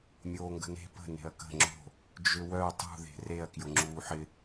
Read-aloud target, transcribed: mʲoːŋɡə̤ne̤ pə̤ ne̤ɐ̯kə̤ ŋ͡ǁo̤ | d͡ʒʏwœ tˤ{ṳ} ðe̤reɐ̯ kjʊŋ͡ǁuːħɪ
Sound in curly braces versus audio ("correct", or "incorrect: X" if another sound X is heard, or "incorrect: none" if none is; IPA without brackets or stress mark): correct